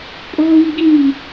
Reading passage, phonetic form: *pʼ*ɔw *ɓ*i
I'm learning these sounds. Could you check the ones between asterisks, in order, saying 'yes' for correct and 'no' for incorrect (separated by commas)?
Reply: yes, no